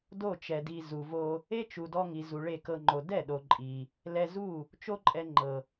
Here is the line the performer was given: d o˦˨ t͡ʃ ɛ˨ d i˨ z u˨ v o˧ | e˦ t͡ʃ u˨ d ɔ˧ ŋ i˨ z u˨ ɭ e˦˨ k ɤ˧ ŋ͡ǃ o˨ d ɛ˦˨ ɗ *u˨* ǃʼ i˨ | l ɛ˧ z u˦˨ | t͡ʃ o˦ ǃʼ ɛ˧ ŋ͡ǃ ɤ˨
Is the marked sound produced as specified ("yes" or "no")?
no